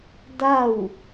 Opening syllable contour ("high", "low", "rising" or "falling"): falling